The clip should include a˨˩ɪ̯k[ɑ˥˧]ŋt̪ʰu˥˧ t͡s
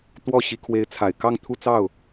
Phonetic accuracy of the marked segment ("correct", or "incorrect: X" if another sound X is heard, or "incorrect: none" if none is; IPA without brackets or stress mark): correct